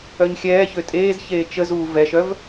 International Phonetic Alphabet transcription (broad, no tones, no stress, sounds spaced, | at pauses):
œ ɲ xʲ ɛː ç ø tʼ eː z ç eː t͡ʃ ə z uː v ɛ ʃ œ v